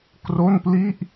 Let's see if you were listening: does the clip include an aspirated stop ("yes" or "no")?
no